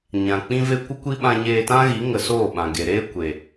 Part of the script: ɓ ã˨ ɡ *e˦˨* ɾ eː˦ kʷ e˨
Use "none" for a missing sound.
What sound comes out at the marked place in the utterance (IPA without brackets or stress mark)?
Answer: e˨